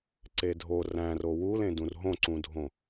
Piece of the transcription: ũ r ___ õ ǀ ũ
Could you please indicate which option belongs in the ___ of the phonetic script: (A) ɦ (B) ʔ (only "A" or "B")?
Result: A